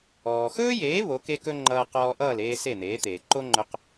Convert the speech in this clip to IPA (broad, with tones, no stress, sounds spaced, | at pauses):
ɔː˩ x ɵː˥ j eː˩˥ β o˩˥ k e˥ k ɵ˥ ŋ͡ǃ ʌː˧ q ɔː˧ ʔ ʌː˥˩ l eː˧ s e˥˩ n̪ eː˩˥ t̪ eː˩ ǃ o˥ ŋ͡ǃ ɵ˧ q